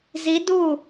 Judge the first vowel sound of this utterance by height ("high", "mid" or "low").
high